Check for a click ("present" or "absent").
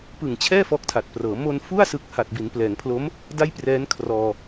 absent